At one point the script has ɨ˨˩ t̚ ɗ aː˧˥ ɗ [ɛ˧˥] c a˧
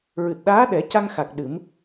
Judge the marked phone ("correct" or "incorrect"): incorrect